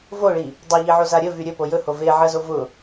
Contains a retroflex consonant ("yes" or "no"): yes